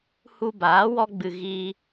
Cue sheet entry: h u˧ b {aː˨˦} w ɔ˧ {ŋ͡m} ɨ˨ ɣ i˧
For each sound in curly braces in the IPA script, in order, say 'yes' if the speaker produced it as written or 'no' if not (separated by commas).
yes, no